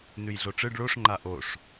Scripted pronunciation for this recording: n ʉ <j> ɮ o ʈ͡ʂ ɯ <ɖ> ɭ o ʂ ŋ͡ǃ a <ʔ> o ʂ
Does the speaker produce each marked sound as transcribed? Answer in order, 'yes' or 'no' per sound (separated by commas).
yes, yes, yes